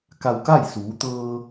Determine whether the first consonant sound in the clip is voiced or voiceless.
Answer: voiceless